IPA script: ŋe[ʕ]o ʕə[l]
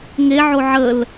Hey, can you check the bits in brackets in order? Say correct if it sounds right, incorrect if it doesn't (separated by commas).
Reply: correct, correct